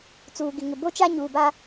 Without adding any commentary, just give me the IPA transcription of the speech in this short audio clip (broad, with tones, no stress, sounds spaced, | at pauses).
t͡s uː˨ ɡ ɪ˨ ŋ ɪ˨ b o˦ t͡ʃ a˦ ɲ uː˨ b a˦